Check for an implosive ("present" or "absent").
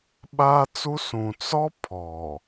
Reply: present